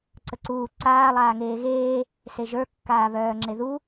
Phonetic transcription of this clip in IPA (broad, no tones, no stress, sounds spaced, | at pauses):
ǀ ə ǀ uː ǀ aː lˠ aː ŋ eː ɣ eː | s e ʒ ə˞ kː aː β œː ŋ͡ǁ e ð u